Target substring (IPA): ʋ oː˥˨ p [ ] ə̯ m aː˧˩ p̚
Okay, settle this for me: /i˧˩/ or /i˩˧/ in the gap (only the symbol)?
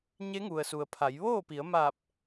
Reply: i˩˧